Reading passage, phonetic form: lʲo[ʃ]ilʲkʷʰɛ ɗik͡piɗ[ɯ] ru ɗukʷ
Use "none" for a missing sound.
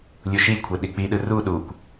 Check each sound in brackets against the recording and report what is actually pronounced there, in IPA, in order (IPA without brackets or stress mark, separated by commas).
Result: ʃ, ɯ